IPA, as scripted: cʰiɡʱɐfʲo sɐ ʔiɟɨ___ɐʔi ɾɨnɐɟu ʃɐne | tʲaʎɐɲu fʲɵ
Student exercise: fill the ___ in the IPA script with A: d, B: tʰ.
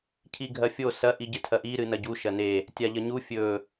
B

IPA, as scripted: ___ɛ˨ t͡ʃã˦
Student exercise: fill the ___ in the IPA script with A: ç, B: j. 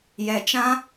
B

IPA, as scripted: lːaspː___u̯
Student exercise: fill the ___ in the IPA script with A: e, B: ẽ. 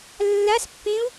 B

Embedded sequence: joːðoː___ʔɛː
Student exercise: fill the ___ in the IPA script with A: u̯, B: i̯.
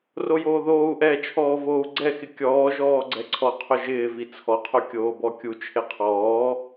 A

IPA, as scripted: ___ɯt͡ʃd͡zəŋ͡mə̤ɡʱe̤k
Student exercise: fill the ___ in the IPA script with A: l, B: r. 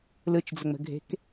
A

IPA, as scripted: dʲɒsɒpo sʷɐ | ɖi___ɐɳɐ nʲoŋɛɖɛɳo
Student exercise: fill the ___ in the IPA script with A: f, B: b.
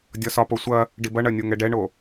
B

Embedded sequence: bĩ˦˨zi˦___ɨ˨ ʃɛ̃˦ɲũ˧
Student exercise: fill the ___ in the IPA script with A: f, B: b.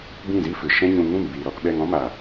A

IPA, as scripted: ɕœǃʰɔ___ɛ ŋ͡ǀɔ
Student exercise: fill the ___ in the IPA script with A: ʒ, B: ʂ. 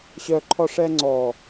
B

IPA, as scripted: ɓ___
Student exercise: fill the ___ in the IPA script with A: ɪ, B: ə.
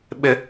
A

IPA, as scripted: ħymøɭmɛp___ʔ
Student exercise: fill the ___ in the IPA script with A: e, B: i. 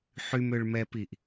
B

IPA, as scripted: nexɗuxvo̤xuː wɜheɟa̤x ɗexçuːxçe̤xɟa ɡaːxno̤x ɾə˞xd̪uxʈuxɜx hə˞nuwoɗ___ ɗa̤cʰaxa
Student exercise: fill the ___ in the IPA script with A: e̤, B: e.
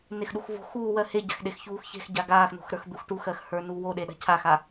B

